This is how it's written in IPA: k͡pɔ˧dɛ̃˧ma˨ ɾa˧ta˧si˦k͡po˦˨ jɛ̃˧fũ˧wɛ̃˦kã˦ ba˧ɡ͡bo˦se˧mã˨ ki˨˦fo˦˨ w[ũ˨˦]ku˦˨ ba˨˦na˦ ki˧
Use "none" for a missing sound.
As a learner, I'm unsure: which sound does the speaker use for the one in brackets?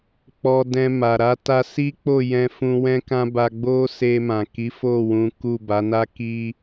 ũ˨˦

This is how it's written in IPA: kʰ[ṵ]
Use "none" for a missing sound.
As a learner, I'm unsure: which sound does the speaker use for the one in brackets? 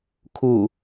u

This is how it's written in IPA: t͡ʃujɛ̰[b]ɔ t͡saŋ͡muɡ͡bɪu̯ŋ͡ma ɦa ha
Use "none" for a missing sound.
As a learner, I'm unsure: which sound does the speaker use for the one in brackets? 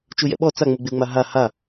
ɓ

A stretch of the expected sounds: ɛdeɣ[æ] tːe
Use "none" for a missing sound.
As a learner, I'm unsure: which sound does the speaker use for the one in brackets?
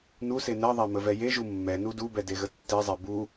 ə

